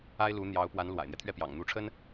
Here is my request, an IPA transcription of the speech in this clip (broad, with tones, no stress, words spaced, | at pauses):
a˥ɪ̯lu˧˥ n̪jɑ˧˥ʊ̯pwa˧˥n lwa̰˨˩ɪ̯n̪jɛ˦t̪ʰɥɛ˥˩pjɑ̰˨˩ŋ n̪u˧˥ʈ͡ʂʰə˥n